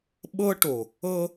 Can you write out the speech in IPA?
ɓɤ˦ ʈo˨ | ɤ˦

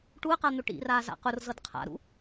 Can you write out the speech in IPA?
ʈuə̯qan̪ʊ ʈḭraza̰ qʊrzɤd qʰa̰ɾṵ

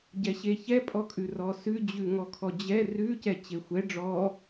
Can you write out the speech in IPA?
ɟɛɕeçɛ pʼɔkʼʉrɔsʉ d͡ʑʉŋɔkʰɔd͡ʑɛ rʉ cɛt͡ɕexʷɛ ɖ͡ʐɔ

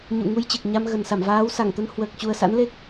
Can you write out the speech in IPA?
ɲṵ˧˨ŋu˧jt͡ɕɨ˨˩k̚ ɲa˧mɣə˨˩nsa˧˩m vaː˨˦wsa˧˩ŋt̪ə˧n hwəː˨˩k̚t͡ɕu˨˩ə̯sa̰˧˥nle˦˥k̚

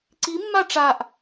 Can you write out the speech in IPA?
ǀimːa ʈ͡ʂaʔ

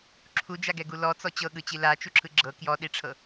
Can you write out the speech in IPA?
ǁʰud͡ʒaɡɛɡu lɔt͡sɔ t͡ɕɤɠɯt͡ɕi lat͡ʃuǁʰɯ ɡ͡ǁɤ kjɔɗiʈ͡ʂʰɤ

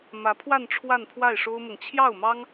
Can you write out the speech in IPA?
mä˧˥pʰwa˥˧n ʈ͡ʂʰwa˥˧npʰwa˥˩ɪ̯ʂo˥ʊ̯mɤ˨ŋ t͡ɕʰjɑ˥˩ʊ̯mɑ˥ŋ

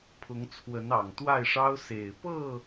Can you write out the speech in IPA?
pʰʊ˨˦ŋt͡sʰwə˨˦n ɑ˨˩ŋt̪wa˥˨ɪ̯ʂɑ˦ʊ̯ se˨˩ɪ̯pɤ˥˨

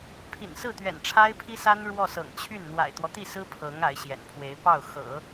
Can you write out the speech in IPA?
pʰḭ˨˩nsɹ̩˥˩t̪ɥɛ̰˨˩n ʈ͡ʂʰa˥ɪ̯pʰi˥sa˥n ɻwɔ˥˩ sɤ̰˨˩ŋt͡ɕʰy˥˩n n̪wa̰˨˩ɪ̯t̪wɔ˦t̪i˥˩sɹ̩˥ pʰɤ˧˥ŋ a˧˥ɪ̯ɕjɛ̰˨˩npʰwe˧˥ɪ̯ pɑ˥˩ʊ̯xɤ̰˨˩˦

